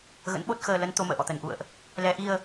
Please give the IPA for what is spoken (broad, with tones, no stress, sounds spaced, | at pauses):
ɣ ə̰˧˥ n ɓ o˦˥ t̚ x əː˧ l ə˨˦ n t̪ o˧ m ə̰ː˧˨ ʔ ɔ̰˧˨ t̪ ə˨˩ n ʔ ṵ˧˨ ə̯ ʔ | l ɛ˧ ʔ i˧ ə̯